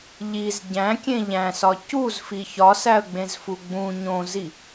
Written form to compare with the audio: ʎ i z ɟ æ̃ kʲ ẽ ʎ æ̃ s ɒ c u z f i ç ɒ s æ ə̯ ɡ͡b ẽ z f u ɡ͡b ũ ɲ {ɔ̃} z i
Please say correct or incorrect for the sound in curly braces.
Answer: incorrect